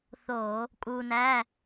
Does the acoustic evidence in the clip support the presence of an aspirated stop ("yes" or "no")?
no